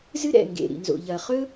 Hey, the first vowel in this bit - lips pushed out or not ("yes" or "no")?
no